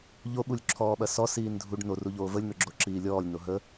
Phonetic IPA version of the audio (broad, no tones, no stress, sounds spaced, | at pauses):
ʎ o ɓ u lʲ ǁʰ ɔː ɓ ɐ s ɔ s iː n dʱ u ɖ n o r u ʎ oː v ə lʲ n̪ ɵ ɡ͡ǁ o ǁ iː lʲ ɔː lʲ n o ɦ ə